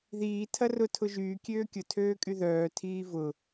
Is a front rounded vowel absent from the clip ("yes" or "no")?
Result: no